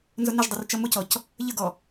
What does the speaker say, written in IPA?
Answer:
n z ʊ n ɪ ʒ dˤ ʊ r t͡ʃ ʌ m ʊ c ɔ c | ʎ ə ɡ ɔ

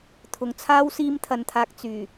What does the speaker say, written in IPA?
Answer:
t̪ʰ ʊ˨ ŋ t͡sʰ aː˥ w s iː˥ m t̪ʰ ɐ˧ n t̪ʰ aː˧ k̚ t͡s yː˨˩

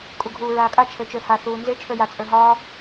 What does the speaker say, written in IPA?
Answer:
kʼ u ɡʱ uː ɹ aː kʼ a t͡ʃʰ ə˞ t͡ʃ ə˞ h a θ uː n z e t͡ʃʰ ə˞ j a t͡sʼ ə˞ ɦ ɒː

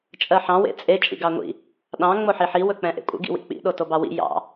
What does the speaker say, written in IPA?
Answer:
t͡ʃʼ ɜ ħ ɑ̃ w ḛ t͡sʼ e t͡ʃʼ ḭ ɡ ɑ ŋʷ ḭ | ɗ ɑ̃ ŋ͡m o ħ i ħ i w ɵ k͡p ɛ̃ ʔ ḛ kʷʼ ə̰ ɡ ḭ w ḭ k͡p ḭ ɗ o t o b ɑ w ḭ j ɑ̰

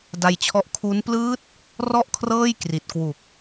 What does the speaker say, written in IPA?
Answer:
d a˧ j t͡ɕʰ ɔ˦˥ ʔ kʰ u˦˥ n p l ɯː˦˥ t̚ | r ɔ˥˩ ʔ kʰ r ɤː˥˩ j k r i˨˩ t̚ k w u˨˩ k̚

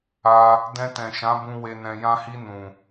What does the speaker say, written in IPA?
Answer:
a˧ | d ɛ̃˧ t ɛ̃˨ ʃ ã˨˦ b ũ˧ w e˧ n ɛ̃˧ j ã˧ h i˧ n ũ˨

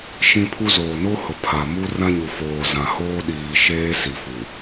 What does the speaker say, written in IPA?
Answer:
ʃ ĩ˦ pʰ u˦ z oː˨ n o˦ h ʊ˨ pʰ a˨ m u˦ r ã˦ ɲ u˨ f oː˨ z ã˨ h oː˦ ɗ iː˨ ʃ eː˦ s i˨ f u˨

